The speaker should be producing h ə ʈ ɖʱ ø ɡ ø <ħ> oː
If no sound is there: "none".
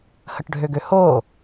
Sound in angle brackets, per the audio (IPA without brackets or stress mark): h